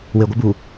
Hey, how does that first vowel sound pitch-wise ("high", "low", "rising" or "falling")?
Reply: low